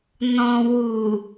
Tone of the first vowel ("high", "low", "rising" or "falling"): low